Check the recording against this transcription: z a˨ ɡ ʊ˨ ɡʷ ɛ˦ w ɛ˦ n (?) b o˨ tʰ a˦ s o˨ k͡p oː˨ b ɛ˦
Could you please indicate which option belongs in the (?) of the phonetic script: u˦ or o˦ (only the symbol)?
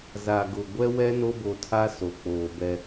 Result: o˦